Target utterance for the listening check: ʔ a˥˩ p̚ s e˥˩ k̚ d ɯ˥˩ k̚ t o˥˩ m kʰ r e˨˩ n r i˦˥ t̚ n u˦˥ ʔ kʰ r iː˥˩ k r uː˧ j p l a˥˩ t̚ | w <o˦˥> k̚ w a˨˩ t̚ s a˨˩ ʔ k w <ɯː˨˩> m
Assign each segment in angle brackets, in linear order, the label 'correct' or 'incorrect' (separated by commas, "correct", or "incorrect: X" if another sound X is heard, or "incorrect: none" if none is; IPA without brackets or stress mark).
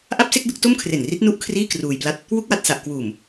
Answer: incorrect: u˦˥, incorrect: uː˨˩